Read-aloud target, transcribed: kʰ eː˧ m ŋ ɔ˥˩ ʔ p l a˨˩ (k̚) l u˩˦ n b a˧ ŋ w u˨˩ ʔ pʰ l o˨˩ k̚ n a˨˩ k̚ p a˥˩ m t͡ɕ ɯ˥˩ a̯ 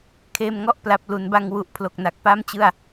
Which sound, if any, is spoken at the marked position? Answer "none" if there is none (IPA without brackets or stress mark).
p̚